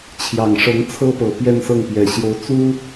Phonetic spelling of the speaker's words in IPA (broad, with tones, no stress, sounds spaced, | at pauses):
t͡ɕʰ j ɑ˨˩ ŋ ʂ ɤ˧˥ ŋ t͡sʰ ɤ˥ p ɤ˨˩ p j ɛ˥˧ n s ɤ˥˩ ŋ p j ɛ˨˩ ɕ j o˧˥ ʊ̯ t͡s u˥